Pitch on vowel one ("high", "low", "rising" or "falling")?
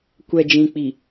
low